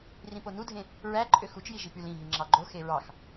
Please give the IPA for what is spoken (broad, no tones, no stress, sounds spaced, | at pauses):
r ĩ p o n u dʱ ẽ | ɹ æ ǃʼ ø x u t͡ʃ j i ʒ i p y l ĩ ɦ i ŋ͡ǁ ɑ ɡ͡ǃ o x e ɹ ɑ x